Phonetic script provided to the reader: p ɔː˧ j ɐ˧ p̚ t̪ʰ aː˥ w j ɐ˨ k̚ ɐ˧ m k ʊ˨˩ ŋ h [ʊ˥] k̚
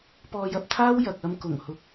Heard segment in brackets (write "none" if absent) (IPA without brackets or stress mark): ʊ˨˥